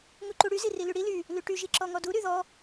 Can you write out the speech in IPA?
ŋ u ǃ u ɽ y z i r i l y ɽ i l y | l y ʈ y ʒ i ǁ ɔ ŋ ɔ d u ɾ y ð ɔ

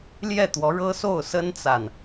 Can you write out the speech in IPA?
l j ɛ˥˩ t̪ w ɔ˧˥ ɻ ɤ˥ s o˥˩ ʊ̯ s ə˥ n t͡s a˨ n

